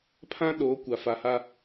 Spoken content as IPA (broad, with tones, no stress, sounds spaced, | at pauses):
pʰ ã˦ ɗ o˨˦ kʷ a˨ f a˨ h a˦